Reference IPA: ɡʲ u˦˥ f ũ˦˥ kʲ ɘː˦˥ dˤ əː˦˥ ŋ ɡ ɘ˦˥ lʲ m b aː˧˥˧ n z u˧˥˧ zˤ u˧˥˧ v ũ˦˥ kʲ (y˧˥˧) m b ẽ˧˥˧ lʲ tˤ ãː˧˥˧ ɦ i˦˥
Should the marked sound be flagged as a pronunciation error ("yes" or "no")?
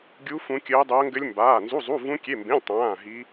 yes